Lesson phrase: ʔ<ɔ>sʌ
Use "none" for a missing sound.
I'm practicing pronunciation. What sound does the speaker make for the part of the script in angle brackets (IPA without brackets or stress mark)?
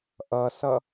ʌ